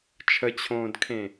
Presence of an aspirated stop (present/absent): present